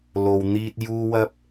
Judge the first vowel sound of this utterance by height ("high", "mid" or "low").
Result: mid